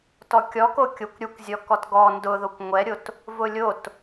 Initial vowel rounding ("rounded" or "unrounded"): rounded